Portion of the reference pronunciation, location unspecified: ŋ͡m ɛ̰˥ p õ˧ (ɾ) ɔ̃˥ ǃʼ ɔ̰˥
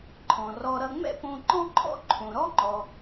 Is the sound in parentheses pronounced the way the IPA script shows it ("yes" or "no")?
no